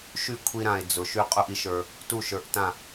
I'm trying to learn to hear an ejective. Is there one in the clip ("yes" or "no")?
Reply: yes